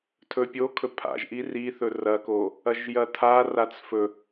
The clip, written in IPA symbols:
tʰ ɵ pʲ o kʰ ɵ pʰ a̰ ʒ ʔ i r i θ ɵ r ɐ k o | ɐ ʒ j ɐ tʰ a r a t͡s f ɵ

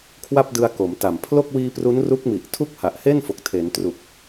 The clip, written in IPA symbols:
kʰ w a˥˩ p̚ d ɯ˧ a̯ k o˩˦ m t a˨˩ m pʰ l o˥˩ k̚ w iː˧ p r u˦˥ n r u˦˥ k̚ m i˨˩ ʔ tʰ u˥˩ k̚ h a˨˩ ʔ h e˥˩ n f o˨˩ k̚ tʰ e˩˦ n t r u˨˩ k̚

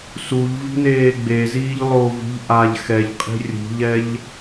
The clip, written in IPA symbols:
s u ʎ v i̤ n eː ɡ͡b e z iː ʎ lˠ o v i̤ ʎ ʔ a ʎ x ɛ ʎ qʼ i̤ rʲ ṳ ʎ ɛ ʎ

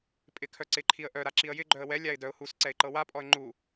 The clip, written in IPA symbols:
pʼ ɪ kʰ œ ǀ ɪ ǃʰ i ə̯ ʔ œ ɾ a ǁ i ə̯ j ɪ ɡ͡ǃ œ ə̯ w ɛ lʲ a ɪ̯ d œ ʊ̯ h u s ǀ ɛ ɪ̯ ǃ ɤ w a pʼ ɔ ə̯ ŋ͡ǃ u

